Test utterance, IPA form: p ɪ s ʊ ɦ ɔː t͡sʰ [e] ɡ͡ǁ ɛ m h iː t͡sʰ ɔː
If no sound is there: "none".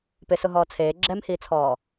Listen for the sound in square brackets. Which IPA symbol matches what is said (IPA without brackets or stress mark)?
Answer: eː